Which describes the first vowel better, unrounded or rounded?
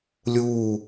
rounded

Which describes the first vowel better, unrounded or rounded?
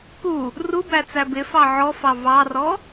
rounded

